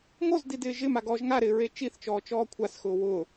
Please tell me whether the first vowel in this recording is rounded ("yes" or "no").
yes